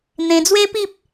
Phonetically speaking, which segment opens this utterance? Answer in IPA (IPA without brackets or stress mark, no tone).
n̪